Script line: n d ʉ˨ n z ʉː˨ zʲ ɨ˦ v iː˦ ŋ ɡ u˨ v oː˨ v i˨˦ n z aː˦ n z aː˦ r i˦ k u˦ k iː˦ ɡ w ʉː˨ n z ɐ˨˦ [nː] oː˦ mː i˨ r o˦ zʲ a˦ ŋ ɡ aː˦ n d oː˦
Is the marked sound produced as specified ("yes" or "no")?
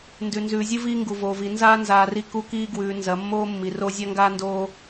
no